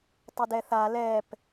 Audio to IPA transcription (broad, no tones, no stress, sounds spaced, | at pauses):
tˤ ə d ɛ θ a l ɛ p